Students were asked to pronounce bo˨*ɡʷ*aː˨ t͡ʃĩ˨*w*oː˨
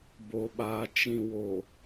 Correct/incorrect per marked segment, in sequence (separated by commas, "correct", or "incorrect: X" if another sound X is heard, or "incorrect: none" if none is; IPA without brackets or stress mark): incorrect: ɓ, correct